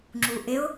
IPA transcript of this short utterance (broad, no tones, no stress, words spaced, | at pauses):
ŋ͡ǁuʔɪʊ̯